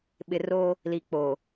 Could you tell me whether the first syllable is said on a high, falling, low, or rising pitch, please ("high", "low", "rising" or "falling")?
low